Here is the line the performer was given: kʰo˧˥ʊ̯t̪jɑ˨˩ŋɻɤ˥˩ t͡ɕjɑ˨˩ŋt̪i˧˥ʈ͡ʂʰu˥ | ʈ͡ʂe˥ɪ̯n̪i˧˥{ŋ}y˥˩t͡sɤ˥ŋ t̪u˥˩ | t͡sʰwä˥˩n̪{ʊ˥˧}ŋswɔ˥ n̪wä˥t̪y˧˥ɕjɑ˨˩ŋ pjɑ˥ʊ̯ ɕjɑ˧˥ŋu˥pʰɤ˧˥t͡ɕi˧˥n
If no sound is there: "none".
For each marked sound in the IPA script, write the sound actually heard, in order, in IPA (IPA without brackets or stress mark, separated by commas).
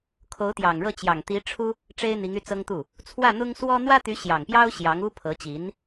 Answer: ŋ, ʊ˥